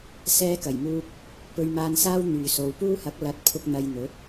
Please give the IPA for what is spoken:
sɛː˥kɐ˨˩jmuː˥k̚ | pɵ˧ɥmaː˧nsaː˥w n̪yː˨so˨˧w puː˥hɐ˨˥k̚ lɐ˨˥t̚pʰʊ˧k̚ n̪ɐ˧jn̪ɵ˨˥t̚

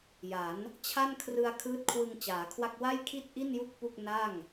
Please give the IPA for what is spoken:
ja˩˦n | t͡ɕʰa˥˩nkʰrɯ˧a̯ kʰɯː˦˥t̚kʰwɯ˧ŋ t͡ɕaː˩˦kʰwa˥˩k̚ wa˥˩jkʰi˥˩t̚ʔi˥˩nju˦˥k̚ pu˥˩k̚ na˥˩ŋ

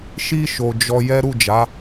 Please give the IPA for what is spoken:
ʃi˧ ʃo˨ d͡ʒɔ˧jɛ˦ ɾu˦˨d͡ʒa˨˦

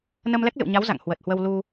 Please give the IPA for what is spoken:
nə˧m lɛ˦˥k̚lɨ̰˧˨wɲa˨˦w za̰˧˨ŋ hwə˨˩t̚hwə˧w lu˧

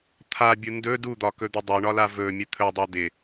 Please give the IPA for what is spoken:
t̪ʰabʲu ndɵ dud̪ɒkɵd̪ə dˤoɳɒla vɵmʲə t̪ʰɵdˤa d̪ɪ

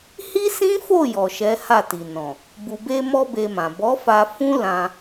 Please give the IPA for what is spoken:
hi˦sĩ˦fo˦˨ jɔ˨ʃɛ˨˦ha˦˨ti˨ nɔ̃˨ | bu˨be˧mɔ˧ be˧mã˨ bɔ˨˦fa˧ fũ˦ lã˧

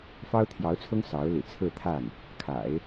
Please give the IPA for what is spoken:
fɑ˥ʊ̯t̪ʰjɑ˧˥ʊ̯t͡sʰʊ˥ŋ sɑ˧˥ʊ̯lḭ˨˩t͡sʰɹ̩˥˧t̪ʰa˥˩n | kʰa̰˨˩˦ɪ̯

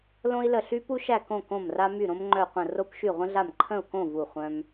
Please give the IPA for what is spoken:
lõ˥i̯lə˥˨ɬy˥ pu˥ʃæ˥˨kõ˥˨ kõ˥˨mra˥my˥˨ ɾõ˥mŋ͡ǃœ˥˨qʷə̃˥˨ ro˥pʃy˥˨ʁʷə̃˥ɮa˥˨m ǃʰə̃˥˨u̯kõ˥˨ vu˥˨χʷœ̃˥m

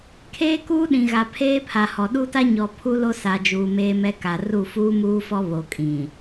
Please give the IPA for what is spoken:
kʰeː˦kuː˦ɗĩ˨ɣa˨ pʰeː˦pʰa˨hɔ˨ ɗu˦ta˦ɲɔ˨ pʰu˦lo˦sa˨d͡ʒuː˨ meː˦mɛ˦ka˨ ru˦˨fuː˦muː˦fɔ˦ βo˨kʼĩ˨

